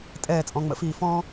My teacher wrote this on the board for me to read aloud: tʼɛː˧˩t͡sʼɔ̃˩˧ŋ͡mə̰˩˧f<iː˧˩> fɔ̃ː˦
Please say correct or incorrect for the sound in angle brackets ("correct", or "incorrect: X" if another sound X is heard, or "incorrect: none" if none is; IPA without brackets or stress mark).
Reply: correct